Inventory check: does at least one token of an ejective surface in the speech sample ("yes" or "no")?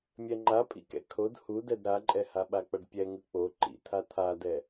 yes